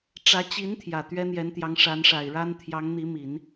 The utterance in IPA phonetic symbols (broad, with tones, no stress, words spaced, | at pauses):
ʈ͡ʂä˧˥t͡ɕi˧˥n t̪ʰjä˨˩t̪ɥɛ˥n̪jɛ˧˥nt̪jɑ˧˥ŋ ʂa˧˥nʂa˨˩ɪ̯ɻa˥n t̪ʰjɑ˧˥ŋn̪i˧˥mi˨˩˦n